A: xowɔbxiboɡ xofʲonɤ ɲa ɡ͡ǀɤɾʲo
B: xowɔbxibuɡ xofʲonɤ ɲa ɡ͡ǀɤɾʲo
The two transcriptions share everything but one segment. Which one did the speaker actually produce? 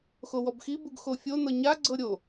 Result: B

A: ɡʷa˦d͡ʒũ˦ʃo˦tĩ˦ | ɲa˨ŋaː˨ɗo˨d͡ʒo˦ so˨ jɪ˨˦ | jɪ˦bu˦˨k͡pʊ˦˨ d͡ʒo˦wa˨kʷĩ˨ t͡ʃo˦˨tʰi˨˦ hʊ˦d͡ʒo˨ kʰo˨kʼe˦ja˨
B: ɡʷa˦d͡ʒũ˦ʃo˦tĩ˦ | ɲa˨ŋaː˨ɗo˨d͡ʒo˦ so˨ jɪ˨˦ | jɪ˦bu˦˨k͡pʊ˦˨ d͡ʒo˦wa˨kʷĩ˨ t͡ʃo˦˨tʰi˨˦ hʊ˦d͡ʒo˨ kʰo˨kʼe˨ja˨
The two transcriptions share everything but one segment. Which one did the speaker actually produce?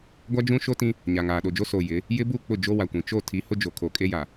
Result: A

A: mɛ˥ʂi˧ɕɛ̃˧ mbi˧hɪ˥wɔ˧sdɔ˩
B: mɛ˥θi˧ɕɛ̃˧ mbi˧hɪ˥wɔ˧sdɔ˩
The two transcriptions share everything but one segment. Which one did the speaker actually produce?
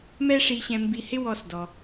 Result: A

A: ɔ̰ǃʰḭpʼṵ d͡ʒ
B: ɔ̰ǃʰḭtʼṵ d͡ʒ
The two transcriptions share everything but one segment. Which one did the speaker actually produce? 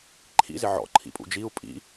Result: A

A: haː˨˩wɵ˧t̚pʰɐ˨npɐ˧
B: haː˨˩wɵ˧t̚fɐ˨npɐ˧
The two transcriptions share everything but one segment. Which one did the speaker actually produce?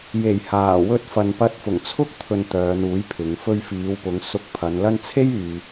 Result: B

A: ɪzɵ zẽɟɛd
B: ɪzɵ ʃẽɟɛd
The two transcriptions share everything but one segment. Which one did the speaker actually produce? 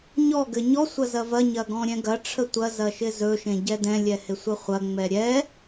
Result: B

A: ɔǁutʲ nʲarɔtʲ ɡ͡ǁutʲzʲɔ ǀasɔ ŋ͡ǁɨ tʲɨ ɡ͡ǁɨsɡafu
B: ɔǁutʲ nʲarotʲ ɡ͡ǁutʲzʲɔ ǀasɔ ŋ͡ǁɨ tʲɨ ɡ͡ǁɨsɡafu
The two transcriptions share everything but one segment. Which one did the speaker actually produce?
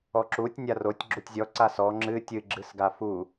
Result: B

